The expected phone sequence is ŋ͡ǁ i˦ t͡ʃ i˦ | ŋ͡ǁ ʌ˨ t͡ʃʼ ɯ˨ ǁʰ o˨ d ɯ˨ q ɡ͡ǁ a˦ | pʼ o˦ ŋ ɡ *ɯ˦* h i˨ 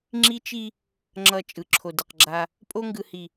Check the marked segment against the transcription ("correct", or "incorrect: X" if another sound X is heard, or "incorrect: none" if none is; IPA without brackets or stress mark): incorrect: ɯ˨